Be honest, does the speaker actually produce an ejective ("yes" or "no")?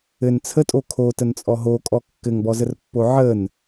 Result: yes